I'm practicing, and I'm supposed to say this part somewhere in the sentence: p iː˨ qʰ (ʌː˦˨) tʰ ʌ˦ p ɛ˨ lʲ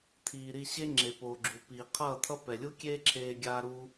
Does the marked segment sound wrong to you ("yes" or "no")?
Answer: no